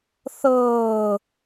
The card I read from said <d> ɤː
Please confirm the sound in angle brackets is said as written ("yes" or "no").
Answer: no